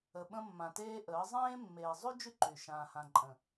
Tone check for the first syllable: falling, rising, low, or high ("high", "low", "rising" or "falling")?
low